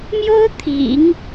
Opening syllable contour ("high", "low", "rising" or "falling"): high